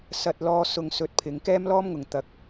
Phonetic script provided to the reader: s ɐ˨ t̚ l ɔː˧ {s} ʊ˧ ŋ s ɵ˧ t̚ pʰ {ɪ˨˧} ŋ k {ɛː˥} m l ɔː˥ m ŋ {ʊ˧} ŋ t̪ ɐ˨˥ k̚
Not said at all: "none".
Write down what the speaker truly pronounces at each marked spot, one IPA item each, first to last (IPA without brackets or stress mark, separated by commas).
s, ɪ˨˧, ɛː˥, ʊ˨˩